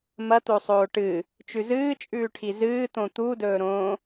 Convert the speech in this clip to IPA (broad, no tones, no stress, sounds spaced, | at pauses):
m ɐ t̪ o sˤ oː ʈ ɨ | t͡ʃ ʉ z ɨː t͡ʃʼ ʉː ʈʰ i z ɨː t̪ õ t̪ u d ɵː ɾ õː